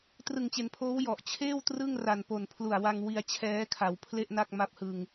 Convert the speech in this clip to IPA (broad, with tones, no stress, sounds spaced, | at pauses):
t r ɯ˨˩ ŋ t͡ɕ e˩˦ n pʰ oː˦˥ w j ɔ˨˩ ʔ t͡ɕʰ eː˥˩ w t r ɯ˥˩ ŋ r a˨˩ n p o˨˩ n pʰ l u˨˩ a̯ w a˧ ŋ w i˧ a̯ t͡ɕʰ ɛː˦˥ kʰ a˩˦ w pʰ l e˥˩ ʔ n a˥˩ k̚ m a˦˥ p̚ h ɯ˧ ŋ